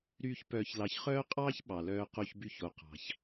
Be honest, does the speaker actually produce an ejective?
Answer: yes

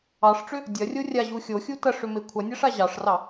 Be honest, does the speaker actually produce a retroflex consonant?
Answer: yes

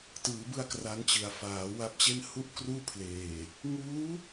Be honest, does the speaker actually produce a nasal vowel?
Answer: no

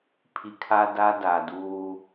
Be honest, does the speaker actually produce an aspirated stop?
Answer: yes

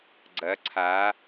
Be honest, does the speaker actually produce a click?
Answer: yes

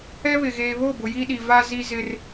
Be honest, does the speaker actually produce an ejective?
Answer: no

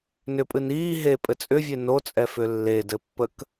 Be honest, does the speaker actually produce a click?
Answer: no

